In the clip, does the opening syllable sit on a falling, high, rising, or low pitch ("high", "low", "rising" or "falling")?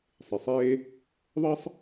low